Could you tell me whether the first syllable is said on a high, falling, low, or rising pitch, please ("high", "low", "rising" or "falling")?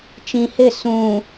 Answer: low